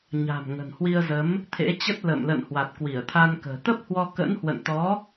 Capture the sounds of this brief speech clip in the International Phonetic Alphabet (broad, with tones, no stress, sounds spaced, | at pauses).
ɲ a̤˨˩ m ŋ ə̤˨˩ n h w i˧ ə̯ z ə˨˦ m | t̪ʰ ḛ˧˥ t͡ɕ ə˦˥ t̚ l ə̰ː˧˨ m l ə̰˧˨ n h w a˨˩ t̚ k w i˧˩ ə̯ t̪ʰ a˧ n k ə̤ː˨˩ t̪ ə˦˥ p̚ h w ɔ˧ k ə̰˧˥ n h w ə̰˧˨ n t̪ ɔ˨˦